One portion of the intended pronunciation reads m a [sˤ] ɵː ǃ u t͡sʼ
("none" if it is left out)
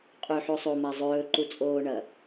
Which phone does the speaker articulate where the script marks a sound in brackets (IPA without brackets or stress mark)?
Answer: zˤ